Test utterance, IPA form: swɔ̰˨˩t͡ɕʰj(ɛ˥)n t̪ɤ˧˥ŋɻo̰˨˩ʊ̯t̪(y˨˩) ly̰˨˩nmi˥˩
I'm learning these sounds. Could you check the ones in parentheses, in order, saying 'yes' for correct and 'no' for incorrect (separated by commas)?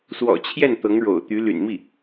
no, no